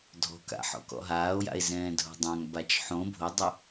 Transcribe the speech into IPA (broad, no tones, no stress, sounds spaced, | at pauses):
dʱ ɔ̤ k a̰ ħ ɔ̰ k ɔ̰ ɦ aː o̯ j a̰ e̯ z ɛ̃ː dʱ o̤ dˤ ã ŋ b a t͡ʃ ħ õ bʱ o dˤ ʊ